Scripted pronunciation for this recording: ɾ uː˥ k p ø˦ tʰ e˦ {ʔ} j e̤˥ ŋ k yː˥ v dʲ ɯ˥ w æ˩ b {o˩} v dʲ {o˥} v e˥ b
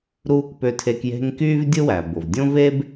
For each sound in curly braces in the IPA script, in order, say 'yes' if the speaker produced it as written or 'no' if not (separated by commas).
no, yes, no